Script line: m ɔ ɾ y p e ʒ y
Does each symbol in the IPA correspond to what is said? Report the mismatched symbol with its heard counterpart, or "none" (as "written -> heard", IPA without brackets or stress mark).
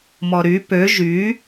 e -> ø